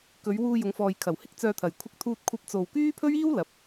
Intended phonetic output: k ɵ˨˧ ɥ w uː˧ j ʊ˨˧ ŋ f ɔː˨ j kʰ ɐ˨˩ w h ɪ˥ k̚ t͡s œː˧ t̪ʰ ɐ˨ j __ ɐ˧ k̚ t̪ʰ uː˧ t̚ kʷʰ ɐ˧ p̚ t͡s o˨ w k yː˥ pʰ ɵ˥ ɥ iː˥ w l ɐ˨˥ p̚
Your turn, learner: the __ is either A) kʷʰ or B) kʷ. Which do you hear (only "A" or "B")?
A